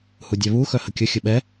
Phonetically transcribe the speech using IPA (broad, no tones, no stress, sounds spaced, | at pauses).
h u dʲ ɛ β u x œ h ə kʲ ə xʲ ə ɓ ɛ